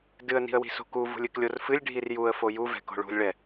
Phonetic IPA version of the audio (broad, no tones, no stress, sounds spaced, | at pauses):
d ɨ ə̯ n i̤ ə̯ w i̤ s o̤ k u v ṳ lʲ ɨ k lʲ o r f ɨ lʲ ɖʱ i r j u ə̯ f o j u v ɛ̤ k o̤ ɭ ṳ lʲ ɭ ɛ